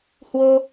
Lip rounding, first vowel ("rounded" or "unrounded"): rounded